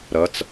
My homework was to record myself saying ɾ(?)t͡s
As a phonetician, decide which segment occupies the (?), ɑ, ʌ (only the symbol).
ʌ